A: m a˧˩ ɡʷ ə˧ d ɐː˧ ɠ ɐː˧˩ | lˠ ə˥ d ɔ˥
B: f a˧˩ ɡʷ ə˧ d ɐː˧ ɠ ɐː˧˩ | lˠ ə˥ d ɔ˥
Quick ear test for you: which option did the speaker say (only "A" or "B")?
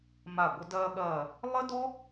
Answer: A